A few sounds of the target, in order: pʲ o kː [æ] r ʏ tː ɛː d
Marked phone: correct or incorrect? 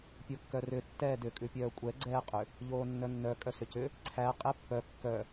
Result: incorrect